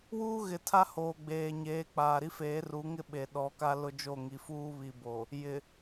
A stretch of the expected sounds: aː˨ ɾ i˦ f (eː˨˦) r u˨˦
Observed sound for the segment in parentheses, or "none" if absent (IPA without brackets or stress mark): eː˨˦